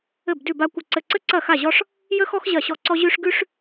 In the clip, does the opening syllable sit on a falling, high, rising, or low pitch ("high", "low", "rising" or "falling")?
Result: falling